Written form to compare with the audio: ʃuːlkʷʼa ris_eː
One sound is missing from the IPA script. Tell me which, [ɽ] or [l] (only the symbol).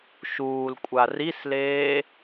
l